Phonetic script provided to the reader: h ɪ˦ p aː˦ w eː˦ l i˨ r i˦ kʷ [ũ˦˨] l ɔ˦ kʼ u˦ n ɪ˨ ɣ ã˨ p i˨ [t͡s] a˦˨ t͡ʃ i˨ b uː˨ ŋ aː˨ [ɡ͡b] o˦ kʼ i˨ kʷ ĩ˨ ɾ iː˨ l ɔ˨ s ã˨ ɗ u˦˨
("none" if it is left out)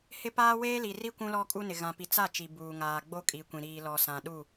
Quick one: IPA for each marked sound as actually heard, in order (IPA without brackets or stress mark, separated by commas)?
ũ˦, t͡s, ɡ͡b